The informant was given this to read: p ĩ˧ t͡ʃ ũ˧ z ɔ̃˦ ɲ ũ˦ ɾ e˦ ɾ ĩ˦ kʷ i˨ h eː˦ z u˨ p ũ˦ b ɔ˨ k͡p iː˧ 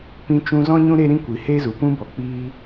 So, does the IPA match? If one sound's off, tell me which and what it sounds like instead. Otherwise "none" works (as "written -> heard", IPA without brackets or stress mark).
none